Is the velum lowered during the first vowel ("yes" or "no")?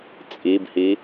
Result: no